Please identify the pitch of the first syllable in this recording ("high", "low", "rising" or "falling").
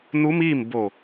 rising